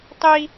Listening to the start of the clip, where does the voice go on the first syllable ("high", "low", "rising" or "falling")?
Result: high